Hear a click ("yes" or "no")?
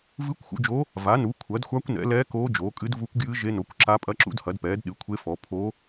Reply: yes